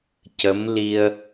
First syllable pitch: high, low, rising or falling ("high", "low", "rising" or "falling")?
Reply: rising